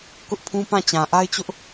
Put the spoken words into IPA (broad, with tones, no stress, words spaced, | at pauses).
kʊ˦ʔpʰũ˦pã˦˨ t͡ɕã˨ʔa˦ɪ̯t͡ɕʊ˦ʔ